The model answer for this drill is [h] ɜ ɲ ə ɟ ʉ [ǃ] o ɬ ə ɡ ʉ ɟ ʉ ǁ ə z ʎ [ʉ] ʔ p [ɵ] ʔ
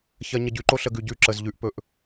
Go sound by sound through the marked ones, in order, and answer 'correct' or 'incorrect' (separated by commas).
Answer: incorrect, correct, correct, correct